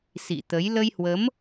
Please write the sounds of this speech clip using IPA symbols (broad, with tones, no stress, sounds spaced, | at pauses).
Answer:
s ḭ˧˨ t̪ ə˨˦ j l ə˧ j h w ə˨˦ m